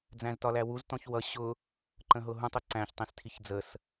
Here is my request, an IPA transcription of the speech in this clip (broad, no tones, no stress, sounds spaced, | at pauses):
d͡z æ̃ z t ɒ l æ w u z t ɔ̃ ç w ʌ ɕ ʊ | ǃ ə̃ ɦ ʊ ɦ ũ tˤ ʊ ǀ æ̃ ç tˤ ĩ s tʰ i ç d͡z ə s